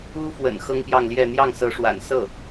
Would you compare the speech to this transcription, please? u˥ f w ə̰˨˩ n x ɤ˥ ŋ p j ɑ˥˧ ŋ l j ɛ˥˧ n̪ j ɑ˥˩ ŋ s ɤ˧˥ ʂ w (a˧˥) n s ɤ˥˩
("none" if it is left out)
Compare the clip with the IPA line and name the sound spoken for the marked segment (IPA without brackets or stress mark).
a̰˨˩